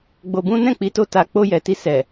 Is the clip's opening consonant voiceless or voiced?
voiced